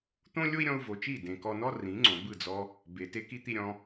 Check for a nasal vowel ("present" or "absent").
present